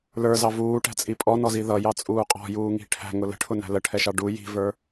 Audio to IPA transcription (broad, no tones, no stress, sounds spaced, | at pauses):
l ə˞ z ɑ v uː ʈ æ̤ t͡sʼ i pʼ ɔ n ɔ z i ð ʌ j ɑ t͡sʼ uː qʼ ɔ̤ j uː ŋ i̤ ʈʰ æ̤ ŋ ʊ l ə̤ ʈʰ ʊ n æ̤ l ə ʈʰ ɛ ʃ ɑ ɖ u j i̤ v ə˞